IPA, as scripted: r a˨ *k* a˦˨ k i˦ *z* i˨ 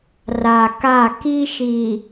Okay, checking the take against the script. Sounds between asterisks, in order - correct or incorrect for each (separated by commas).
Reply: correct, incorrect